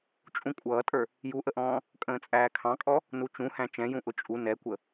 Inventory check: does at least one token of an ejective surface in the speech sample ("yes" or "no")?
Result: yes